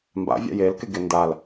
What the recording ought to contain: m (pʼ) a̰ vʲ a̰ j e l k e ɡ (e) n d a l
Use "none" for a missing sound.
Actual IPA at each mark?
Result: b, e

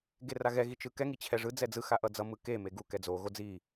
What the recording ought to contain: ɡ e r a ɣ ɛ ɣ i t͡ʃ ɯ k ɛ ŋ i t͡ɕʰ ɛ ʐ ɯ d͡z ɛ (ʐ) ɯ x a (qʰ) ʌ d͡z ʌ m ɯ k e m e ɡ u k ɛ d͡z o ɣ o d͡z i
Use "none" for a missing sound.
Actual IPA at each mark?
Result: d͡z, ʔ

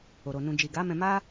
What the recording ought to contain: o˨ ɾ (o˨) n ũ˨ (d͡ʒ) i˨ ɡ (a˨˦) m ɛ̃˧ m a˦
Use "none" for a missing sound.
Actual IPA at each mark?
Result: o˨, d͡ʒ, a˨˦

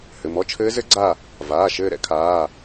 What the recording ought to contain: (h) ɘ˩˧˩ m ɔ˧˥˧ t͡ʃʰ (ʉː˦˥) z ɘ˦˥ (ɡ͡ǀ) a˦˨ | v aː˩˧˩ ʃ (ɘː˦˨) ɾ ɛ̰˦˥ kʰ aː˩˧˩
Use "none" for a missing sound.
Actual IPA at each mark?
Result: h, ɘː˦˥, ɡ͡ǀ, ɘː˦˨

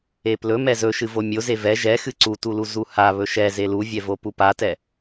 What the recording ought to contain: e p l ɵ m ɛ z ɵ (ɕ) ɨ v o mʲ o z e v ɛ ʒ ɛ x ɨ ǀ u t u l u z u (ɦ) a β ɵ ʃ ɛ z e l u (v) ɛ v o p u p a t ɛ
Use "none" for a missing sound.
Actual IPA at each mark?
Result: ʃ, h, vʲ

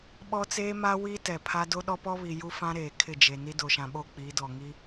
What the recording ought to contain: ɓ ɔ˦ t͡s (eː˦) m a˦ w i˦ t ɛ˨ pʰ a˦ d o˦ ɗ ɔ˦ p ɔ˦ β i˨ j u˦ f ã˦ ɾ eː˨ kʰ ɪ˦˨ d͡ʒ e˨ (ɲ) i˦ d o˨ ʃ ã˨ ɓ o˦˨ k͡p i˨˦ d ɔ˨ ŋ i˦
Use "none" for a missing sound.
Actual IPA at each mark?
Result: eː˦, n

